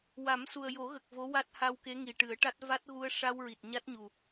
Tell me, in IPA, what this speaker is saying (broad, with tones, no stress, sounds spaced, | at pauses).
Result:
w a˨˩˦ m s u˨˩ ə̯ j o˨˩˦ ɣ ə˨˩ k̚ v o˧˥ w a˦˥ t̚ h a˧ w k e˧˥ ŋ i˨˩ ʈ ɨ˨˩˦ ə̯ ʈ a˦˥ t̚ v a˦˥ t̚ ɣ u˧ ə̯ ʂ a˧ w ɹ i˨˩ t̚ ɲ a˦˥ t̚ ɲ u˨˩